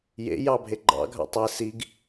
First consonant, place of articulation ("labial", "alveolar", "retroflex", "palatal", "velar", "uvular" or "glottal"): palatal